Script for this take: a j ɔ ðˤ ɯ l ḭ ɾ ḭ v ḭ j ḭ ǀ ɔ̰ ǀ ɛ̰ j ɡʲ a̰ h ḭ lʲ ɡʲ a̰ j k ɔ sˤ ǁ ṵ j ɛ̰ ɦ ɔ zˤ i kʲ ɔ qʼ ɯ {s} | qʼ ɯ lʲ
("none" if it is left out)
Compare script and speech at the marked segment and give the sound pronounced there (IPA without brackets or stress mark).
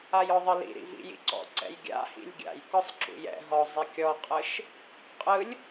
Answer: ʃ